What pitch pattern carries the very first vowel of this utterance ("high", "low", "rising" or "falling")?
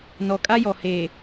low